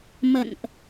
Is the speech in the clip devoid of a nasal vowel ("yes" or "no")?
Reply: yes